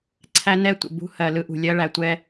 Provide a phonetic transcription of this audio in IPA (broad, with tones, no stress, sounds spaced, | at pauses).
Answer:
ǀʰ æ˦ n ɛ˦ tʷ ə̰˨ b ṳ˦ h ɜ˨ l ɯ˦ ʔ ṳ˨ lʲ ɜ˦ ɭ æ˨ tʷ ɛ˦